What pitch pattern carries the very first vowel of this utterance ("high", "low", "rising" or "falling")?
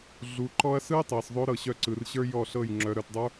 low